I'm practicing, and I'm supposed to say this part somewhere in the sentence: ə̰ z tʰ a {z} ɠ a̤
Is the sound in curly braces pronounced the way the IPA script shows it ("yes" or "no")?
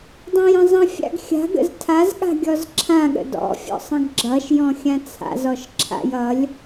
yes